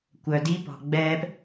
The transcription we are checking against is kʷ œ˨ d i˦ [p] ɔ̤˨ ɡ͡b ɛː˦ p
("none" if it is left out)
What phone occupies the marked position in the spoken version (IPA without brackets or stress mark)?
p